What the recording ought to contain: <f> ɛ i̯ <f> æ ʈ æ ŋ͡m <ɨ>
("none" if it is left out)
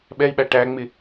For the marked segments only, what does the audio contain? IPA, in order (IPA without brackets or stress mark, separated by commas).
ɓ, ɓ, ɪ